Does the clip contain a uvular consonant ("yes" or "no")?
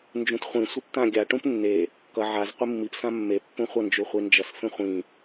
yes